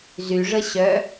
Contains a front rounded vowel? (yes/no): yes